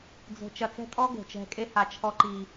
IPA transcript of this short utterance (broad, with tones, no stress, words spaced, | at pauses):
d͡zo̤˧ t͡ʃɐ˧t͡sɛ̤˦tʼɔ˦ ɡo̤˨t͡ʃɛ̤˧kʼe˦ ha˧t͡ʃʰɔ˦ǃi˧